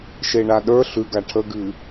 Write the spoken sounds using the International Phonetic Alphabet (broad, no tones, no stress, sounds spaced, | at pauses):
ʃ e ɳ a ɗ ə˞ ɬ ʉ ɡ a ʈʰ ə ɡ ɨ